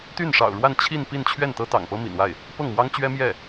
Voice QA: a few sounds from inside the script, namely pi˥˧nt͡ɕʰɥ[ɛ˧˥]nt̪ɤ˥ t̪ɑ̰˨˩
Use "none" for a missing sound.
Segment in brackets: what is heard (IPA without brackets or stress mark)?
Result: ɛ˥˩